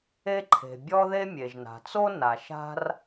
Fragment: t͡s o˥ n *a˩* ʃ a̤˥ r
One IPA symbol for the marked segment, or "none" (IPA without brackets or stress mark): a˩